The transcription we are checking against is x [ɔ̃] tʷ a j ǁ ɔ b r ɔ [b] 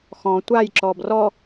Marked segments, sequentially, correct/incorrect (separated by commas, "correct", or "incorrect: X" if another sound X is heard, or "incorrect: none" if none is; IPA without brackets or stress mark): correct, incorrect: none